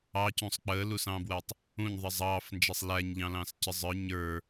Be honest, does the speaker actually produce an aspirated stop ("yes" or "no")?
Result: no